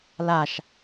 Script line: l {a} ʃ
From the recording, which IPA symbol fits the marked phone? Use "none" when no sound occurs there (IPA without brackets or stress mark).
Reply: a